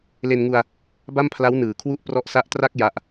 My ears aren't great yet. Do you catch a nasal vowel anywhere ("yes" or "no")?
no